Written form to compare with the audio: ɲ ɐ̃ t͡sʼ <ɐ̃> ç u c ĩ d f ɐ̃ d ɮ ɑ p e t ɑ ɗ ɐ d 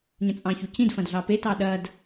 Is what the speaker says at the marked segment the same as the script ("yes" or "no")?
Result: no